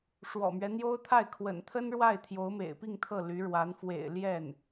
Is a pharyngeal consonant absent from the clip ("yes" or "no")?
yes